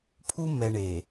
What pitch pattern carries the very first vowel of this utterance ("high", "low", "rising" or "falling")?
high